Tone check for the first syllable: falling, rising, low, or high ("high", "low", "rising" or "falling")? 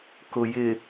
low